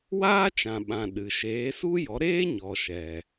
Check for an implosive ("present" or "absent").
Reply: present